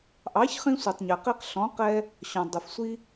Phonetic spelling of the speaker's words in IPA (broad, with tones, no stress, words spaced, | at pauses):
ʔɑ˩˥çχĩ˧sʷi˩tˤ ɲɛ˩qi˧q ɬɔ̃˩˥qɛ˧ | ɕɔ̃˩dˤʊ˩fsʷi˧